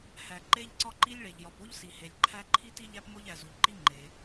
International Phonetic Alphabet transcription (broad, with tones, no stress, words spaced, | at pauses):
hæ˩ ǃe˥ʎǀɒ˥ ǃi˥lʲɭe˩ʎ jɒ˩po˥ʎsi˩ he˩lʲǃʰæ˥ ǃʰi˥ ti˥ ʎæ˥pmo˥ʎ æ˩zu˩ʎǃi˥ ŋ͡ǃe˩